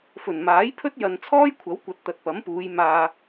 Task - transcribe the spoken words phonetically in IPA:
f ɵ˨˩ n m aː˨˥ j pʰ ɵ˥ t̚ j ɐ˨ n t͡sʰ ɔː˥ j kʷʰ ɐ˨˥ w kʷ ɐ˨ t̚ t̪ ɐ˨ t̚ p ɐ˨˥ m p uː˨˧ j m aː˧

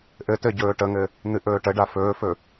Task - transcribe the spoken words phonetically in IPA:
ʔ ɘ t ɘ ɟ ɵː ʈ ə ŋ ɘ | n̪ ɨ ʔ ɵː ʈ ə ɖ a f ɵː f ɵ

